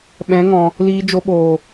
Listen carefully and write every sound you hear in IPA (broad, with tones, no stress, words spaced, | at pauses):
ɓɛ̃˨˦ŋɔ̃˨ | liː˧d͡ʒo˧ɓoː˨